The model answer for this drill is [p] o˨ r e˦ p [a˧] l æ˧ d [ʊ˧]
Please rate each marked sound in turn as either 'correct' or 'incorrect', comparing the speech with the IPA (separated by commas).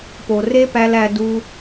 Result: correct, incorrect, incorrect